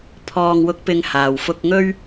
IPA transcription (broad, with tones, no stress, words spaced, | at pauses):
pʰɔː˨ŋwʊ˨˥k̚pɪ˨ŋ haː˨˩wfʊ˧k̚ŋɵ˥ɥ